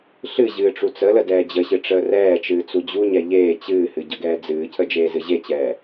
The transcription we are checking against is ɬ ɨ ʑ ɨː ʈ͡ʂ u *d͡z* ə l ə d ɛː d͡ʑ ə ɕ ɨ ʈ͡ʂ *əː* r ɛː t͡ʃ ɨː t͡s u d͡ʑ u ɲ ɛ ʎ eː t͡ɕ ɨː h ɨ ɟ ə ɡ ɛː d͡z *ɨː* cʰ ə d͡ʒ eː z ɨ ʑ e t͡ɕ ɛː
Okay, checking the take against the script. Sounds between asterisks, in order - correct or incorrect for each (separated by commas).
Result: incorrect, correct, correct